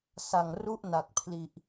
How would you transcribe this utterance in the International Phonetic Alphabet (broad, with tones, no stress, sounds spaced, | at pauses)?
s a˨˩ ŋ r u˥˩ ʔ n a˨˩ k̚ pʰ l i˨˩ ʔ